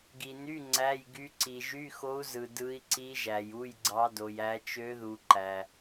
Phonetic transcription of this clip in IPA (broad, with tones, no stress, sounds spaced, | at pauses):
ɡ i˨ n y˧˥˧ ŋ͡ǀ æ˧˥˧ j ɡ y˧˥ ǀ i˨ ʒ y˧˥˧ x o˧˥ u̯ z ɯ˨ d ɯ˧˥ i̯ ǀ i˧˥ ʒ æ˨ j u˧˥˧ j ɡ͡ǀ ɑ˧˥ d o˨ j æ˧˥ t͡ʃ ø˧˥ ð u˨ ǃ æ˨